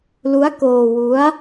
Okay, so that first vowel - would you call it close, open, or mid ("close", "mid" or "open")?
close